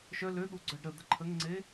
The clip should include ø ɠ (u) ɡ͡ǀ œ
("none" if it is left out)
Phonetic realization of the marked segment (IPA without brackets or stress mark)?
u